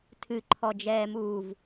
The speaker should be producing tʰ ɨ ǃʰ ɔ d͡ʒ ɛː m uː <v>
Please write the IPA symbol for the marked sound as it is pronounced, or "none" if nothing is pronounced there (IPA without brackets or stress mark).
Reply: v